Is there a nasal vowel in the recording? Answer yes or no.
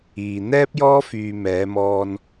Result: no